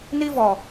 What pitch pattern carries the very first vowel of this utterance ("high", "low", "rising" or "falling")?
high